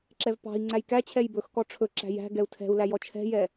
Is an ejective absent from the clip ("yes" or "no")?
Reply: yes